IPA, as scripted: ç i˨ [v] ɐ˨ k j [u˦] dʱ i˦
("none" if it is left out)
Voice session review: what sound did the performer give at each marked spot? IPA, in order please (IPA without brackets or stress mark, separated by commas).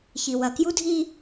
w, u˦